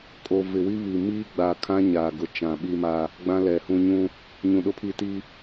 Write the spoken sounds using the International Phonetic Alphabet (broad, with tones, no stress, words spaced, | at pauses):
kʼo˨ vɪ˨wi˦βi˨ miː˦ɡ͡ba˨kʰã˦ ɲaː˨ɡʊ˨ t͡ʃã˨ɓi˦ma˦ | ɡ͡bã˦lɛ˨hũ˦ ɲũ˦ | ɲũ˨ɗʊ˦pʰi˦ti˦